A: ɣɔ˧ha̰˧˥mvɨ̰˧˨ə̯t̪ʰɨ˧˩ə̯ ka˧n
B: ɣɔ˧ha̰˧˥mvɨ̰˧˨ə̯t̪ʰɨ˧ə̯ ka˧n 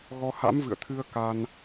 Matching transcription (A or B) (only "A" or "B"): B